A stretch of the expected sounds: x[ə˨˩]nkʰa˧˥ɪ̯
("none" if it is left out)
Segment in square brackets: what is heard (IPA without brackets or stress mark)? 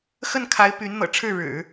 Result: ə˥˩